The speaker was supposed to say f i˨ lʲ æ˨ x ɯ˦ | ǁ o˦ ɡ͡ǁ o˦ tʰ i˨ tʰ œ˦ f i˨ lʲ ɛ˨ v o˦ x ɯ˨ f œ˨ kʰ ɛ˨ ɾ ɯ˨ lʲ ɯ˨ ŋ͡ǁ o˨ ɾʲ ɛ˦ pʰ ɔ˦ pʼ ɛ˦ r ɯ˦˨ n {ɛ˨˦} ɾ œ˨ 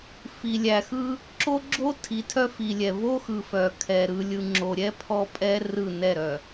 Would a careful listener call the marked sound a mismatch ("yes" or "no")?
yes